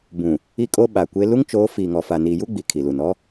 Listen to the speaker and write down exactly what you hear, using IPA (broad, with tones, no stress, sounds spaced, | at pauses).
b ũ˨ | i˦ kʼ o˦ ɓ a˨ kʷ e˦ l u˦ ŋ t͡ʃ oː˨˦ f iː˨ ŋ ɔ˨ f a˨ n iː˨ j u˦ ɡ͡b i˨ kʰ i˨ l u˨ n ɔ˦